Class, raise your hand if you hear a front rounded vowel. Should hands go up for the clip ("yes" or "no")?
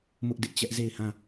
no